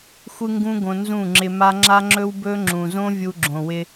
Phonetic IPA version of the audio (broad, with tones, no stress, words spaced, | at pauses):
xʷɨ˦ŋɡũ˦ɡõ˧ nzũ˦˨ŋ͡ǁɪ˧ma˦ ŋ͡ǁa˦ŋ͡ǁɵ˦wbɵ˦ ŋ͡ǁũ˨zõ˦ vʲu˧ɡ͡ǁõ˨wɪ˧